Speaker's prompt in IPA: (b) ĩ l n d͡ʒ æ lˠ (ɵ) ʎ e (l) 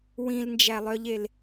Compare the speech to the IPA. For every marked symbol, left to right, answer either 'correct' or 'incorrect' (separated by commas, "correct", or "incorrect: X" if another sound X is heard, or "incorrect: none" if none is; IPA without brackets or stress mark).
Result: incorrect: w, incorrect: œ, correct